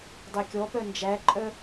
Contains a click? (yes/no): yes